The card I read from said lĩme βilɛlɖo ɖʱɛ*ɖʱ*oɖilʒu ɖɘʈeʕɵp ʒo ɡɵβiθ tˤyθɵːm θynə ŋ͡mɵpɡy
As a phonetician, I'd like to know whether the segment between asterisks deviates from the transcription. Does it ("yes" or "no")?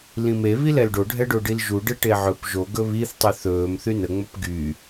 yes